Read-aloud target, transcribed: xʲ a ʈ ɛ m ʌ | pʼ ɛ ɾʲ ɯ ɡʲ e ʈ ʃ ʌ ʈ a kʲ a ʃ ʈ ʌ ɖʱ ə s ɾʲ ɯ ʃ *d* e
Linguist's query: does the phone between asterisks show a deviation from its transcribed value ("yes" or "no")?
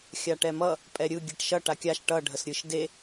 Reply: no